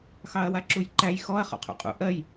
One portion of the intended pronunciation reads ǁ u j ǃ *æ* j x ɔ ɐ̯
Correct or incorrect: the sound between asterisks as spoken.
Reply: correct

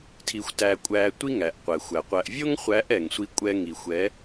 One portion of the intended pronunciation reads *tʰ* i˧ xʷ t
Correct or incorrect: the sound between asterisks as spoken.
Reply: correct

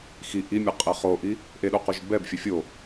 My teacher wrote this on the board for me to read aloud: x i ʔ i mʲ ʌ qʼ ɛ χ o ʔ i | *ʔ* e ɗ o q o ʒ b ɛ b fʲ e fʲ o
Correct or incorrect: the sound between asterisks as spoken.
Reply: correct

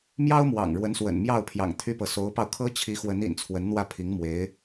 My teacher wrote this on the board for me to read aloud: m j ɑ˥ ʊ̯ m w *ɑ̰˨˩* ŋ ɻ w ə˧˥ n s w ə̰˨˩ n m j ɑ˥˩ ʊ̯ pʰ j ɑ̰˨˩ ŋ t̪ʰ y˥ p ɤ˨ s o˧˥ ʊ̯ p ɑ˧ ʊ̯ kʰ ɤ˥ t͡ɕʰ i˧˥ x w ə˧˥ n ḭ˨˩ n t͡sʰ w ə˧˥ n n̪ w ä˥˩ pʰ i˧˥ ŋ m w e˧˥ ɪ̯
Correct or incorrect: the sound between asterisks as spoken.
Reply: correct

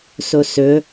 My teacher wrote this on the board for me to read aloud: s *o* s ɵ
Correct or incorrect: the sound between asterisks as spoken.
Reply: correct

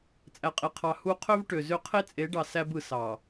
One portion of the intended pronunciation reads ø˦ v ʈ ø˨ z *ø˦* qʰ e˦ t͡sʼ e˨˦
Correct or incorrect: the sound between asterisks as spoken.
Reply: correct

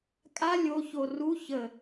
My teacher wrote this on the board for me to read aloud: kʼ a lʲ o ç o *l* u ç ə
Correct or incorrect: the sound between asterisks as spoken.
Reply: incorrect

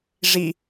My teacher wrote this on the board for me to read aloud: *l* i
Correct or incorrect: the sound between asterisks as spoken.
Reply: incorrect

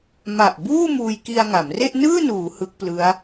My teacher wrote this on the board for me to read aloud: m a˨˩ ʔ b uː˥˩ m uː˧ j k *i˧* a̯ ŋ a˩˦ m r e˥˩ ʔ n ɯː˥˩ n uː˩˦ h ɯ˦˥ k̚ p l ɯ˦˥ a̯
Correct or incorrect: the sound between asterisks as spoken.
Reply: correct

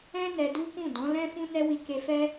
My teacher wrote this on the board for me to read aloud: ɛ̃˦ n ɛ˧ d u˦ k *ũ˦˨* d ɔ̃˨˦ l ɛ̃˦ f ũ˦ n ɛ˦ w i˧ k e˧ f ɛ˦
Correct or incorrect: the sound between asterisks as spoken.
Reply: correct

